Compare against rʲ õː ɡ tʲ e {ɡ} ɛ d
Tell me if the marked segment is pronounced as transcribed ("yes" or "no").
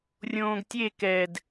no